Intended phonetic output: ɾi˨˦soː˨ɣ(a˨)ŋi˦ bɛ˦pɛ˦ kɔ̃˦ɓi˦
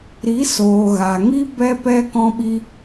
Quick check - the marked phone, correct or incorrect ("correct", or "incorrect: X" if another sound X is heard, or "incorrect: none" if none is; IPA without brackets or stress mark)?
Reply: correct